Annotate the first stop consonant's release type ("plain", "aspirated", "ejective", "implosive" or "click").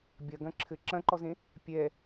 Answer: plain